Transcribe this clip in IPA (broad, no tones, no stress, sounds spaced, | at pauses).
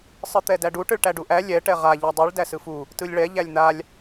sˤ ɯ t̪ ɛ d æ ɖ u ʈ ɯ ɭ ʈ æ ɖ u ʔ æ lʲ ɛ ʈ ɛ ʁ a ʎ a dˤ ɯ ɭ d æ s ɯ f u | t ɯ lʲ ɭ ɛ ʎ æ lʲ n̪ a lʲ